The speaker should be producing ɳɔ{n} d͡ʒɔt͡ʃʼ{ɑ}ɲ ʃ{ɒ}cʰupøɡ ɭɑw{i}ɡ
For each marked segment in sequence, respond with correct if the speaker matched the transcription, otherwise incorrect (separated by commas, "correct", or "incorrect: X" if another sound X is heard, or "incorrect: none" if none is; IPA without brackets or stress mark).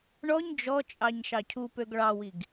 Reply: incorrect: ɲ, correct, incorrect: ɑ, correct